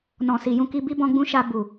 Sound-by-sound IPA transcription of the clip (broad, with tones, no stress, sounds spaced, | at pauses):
n ɔ̃˨ s i˨ j ũ˧ k i˧ b i˦ b ɔ̃˧ ɡ͡b ũ˦ ʃ a˧ b u˨